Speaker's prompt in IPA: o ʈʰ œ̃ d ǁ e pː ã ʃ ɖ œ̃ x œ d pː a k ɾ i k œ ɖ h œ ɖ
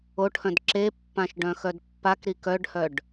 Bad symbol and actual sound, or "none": none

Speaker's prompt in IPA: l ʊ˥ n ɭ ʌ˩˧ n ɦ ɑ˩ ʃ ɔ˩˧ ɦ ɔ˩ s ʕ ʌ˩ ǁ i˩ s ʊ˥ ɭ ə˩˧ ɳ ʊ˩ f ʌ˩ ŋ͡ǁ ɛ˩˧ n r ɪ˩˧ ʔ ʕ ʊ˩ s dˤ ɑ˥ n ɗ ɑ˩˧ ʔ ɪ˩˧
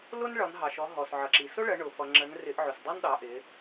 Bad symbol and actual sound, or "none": ɛ˩˧ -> ə˩˧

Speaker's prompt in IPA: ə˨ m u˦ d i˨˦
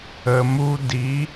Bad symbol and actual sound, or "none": none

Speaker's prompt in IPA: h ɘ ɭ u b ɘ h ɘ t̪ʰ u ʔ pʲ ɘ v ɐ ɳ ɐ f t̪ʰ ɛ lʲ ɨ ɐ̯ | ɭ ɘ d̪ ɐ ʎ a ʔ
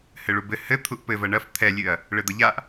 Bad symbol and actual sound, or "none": pʲ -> p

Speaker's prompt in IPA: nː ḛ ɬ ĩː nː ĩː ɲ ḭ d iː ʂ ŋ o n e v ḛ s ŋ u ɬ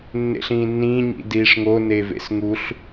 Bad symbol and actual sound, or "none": none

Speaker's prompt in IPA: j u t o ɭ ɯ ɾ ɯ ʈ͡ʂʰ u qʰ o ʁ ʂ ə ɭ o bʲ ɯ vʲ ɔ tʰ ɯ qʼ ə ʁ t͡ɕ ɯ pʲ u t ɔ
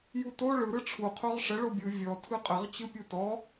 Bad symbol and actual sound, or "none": none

